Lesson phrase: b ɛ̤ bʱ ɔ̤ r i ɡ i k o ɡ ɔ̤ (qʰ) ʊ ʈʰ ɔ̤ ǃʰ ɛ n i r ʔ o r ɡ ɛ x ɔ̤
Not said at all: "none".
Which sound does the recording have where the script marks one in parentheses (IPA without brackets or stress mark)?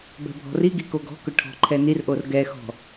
k